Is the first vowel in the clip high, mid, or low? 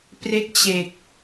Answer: mid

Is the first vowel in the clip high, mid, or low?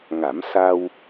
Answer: low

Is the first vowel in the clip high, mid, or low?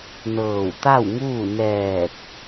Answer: mid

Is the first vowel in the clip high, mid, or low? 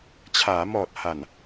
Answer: low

